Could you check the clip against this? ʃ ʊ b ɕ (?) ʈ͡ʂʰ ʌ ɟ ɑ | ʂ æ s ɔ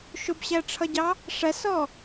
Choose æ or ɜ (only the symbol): æ